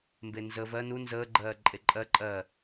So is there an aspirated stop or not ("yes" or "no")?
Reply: no